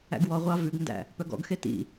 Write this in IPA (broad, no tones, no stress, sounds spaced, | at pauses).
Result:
æ̰ ɡ w ɔ ʁʷ ɑ v ʉ ɡ n d æ̰ | p œ ɡ ɔ̰ ɡ x e t ḭ